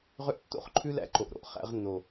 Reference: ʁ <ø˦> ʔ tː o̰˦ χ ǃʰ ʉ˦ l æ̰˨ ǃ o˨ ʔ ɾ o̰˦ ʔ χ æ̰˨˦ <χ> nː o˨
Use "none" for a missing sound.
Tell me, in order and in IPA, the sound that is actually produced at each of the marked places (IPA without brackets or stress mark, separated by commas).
ø˦, ʁ